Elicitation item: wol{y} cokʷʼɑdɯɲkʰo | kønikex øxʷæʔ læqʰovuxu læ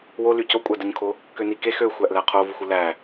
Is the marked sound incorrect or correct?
correct